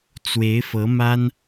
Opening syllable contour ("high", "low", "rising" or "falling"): rising